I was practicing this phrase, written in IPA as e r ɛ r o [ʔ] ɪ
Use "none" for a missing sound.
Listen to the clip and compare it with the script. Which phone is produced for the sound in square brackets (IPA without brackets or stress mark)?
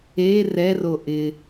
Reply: ʔ